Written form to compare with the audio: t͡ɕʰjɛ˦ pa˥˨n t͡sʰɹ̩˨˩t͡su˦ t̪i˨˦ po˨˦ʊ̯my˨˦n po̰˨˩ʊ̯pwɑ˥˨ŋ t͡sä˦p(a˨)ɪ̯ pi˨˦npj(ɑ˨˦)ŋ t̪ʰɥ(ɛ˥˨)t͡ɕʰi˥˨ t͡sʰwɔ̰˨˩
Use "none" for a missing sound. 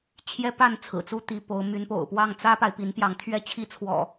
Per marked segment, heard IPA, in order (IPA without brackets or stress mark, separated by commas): a˨, ɑ˨˦, ɛ˦